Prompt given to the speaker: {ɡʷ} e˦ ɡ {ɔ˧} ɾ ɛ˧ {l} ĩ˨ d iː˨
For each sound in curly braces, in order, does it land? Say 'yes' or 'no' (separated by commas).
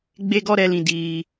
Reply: no, no, yes